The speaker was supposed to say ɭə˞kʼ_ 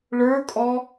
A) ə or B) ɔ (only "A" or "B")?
B